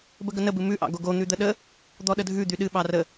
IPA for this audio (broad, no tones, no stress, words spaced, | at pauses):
bəɡənə bɨmʉ ʔɑ̰ɡoɡo n̪ʉd̪əɗə | d̪ɔɗədʱʉ d̪yɗɨ ɓɑrə